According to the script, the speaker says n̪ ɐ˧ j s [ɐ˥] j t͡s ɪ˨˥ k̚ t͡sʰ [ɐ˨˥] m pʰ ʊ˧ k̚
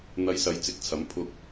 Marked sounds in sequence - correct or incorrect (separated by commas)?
incorrect, correct